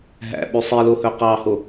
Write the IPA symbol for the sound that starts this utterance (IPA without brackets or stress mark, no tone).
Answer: ɦ